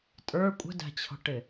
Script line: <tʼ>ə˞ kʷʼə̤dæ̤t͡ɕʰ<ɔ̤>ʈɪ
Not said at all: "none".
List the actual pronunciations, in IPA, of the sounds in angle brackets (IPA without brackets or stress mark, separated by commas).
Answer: tʼ, ɔ̤